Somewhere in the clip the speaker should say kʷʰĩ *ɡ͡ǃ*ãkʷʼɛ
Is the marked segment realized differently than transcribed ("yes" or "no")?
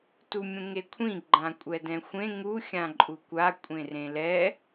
no